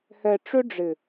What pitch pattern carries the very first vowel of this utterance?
low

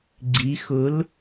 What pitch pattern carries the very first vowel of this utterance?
rising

